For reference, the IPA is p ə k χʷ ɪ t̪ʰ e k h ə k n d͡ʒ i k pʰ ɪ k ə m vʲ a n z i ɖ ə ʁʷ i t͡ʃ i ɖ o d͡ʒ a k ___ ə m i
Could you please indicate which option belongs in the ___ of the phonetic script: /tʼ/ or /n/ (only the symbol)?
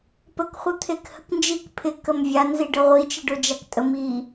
tʼ